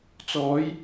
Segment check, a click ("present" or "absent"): absent